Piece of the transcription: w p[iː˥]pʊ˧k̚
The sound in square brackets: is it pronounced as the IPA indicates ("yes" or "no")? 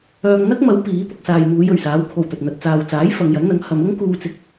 no